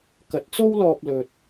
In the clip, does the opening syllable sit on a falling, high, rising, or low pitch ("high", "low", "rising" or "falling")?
rising